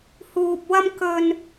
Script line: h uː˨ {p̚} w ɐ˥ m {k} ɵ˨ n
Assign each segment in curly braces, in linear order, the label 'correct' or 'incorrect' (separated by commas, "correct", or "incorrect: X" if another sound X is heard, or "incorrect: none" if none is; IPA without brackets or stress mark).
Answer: correct, correct